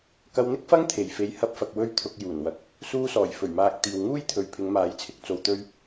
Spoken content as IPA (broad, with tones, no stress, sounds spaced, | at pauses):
k ɐ˧ w n̪ ɪ˥ k̚ f ɐ˥ ŋ t̪ʰ e˨˩ j f e˨˧ j h ɐ˧ p̚ f ɐ˨ k̚ w ɵ˥ ɥ t̪ʰ ʊ˧ k̚ j uː˨˩ n w ɐ˨ k̚ | s uː˧ s ɔː˨˩ j f ɵ˨˩ ɥ m aː˨ k̚ t̪ iː˨ w ŋ uː˥ j t̪ʰ ɵ˨ ɥ pʰ ɪ˨˧ ŋ m aː˨˧ j t͡sʰ ɪ˧ k̚ t͡s o˨ w t̪ ɵ˧ ɥ